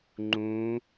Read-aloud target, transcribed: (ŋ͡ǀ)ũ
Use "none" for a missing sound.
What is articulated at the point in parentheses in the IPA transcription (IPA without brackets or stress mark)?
ŋ͡ǃ